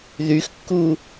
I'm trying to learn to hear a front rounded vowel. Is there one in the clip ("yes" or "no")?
yes